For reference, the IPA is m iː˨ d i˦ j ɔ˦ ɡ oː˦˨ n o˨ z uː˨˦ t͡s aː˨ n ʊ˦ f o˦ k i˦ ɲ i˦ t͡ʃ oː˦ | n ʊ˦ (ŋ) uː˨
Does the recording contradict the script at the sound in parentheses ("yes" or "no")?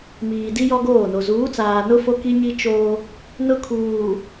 yes